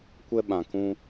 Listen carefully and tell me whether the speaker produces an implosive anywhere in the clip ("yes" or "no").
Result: yes